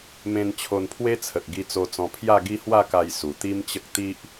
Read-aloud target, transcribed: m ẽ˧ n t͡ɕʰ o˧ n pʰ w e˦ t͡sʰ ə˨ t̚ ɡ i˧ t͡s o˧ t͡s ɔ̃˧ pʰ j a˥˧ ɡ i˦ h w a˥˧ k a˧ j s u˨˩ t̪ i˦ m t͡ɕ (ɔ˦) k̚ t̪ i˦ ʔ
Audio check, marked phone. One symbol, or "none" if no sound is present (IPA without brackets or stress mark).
ə˦